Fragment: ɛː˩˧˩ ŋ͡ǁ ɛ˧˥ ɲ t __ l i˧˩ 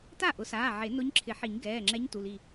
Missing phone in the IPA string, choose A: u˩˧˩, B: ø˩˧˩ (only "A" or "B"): A